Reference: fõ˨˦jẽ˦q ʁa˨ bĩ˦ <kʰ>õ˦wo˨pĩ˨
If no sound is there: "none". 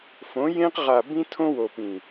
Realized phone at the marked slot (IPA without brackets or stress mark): tʰ